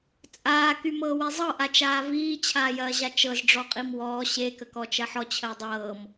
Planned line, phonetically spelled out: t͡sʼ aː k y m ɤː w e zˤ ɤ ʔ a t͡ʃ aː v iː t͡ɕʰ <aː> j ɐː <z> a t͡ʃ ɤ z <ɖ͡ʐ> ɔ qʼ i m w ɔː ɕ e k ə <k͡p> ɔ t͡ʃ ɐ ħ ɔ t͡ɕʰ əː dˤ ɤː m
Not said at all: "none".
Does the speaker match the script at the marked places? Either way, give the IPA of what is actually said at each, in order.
aː, ʑ, ɖ͡ʐ, k

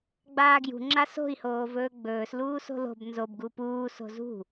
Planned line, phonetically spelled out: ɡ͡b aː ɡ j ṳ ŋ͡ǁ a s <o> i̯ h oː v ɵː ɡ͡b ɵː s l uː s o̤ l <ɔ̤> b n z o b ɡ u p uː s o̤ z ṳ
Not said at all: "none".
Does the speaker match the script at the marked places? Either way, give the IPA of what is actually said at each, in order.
o̤, o̤

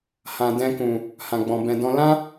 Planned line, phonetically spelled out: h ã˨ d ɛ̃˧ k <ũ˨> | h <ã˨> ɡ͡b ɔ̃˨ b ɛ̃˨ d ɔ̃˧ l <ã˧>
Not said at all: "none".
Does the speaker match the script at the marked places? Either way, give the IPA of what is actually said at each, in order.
ũ˨, ã˨, ã˦

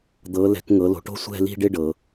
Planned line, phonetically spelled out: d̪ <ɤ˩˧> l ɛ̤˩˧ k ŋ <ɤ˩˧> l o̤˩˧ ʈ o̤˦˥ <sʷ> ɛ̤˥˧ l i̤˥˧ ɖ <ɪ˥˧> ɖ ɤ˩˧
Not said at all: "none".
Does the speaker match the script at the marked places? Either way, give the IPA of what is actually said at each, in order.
ɤ˩˧, ɤ˩˧, sʷ, ɪ˥˧

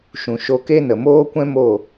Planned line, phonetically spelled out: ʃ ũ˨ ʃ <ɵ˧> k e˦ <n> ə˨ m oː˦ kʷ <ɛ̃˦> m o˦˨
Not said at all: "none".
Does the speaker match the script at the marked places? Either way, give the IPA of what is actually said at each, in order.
o˧, n, ɛ̃˦

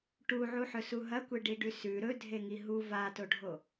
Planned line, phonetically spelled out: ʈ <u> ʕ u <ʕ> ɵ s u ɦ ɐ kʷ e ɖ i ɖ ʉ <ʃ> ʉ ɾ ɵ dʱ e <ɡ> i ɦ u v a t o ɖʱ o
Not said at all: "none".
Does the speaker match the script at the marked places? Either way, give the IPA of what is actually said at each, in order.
u, ħ, s, ŋ

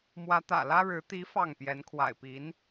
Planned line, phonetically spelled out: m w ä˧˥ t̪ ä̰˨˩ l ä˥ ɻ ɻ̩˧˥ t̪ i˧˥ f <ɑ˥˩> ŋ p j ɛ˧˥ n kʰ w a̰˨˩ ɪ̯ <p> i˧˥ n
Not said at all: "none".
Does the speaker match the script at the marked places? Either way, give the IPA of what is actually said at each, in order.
ɑ˥˩, p

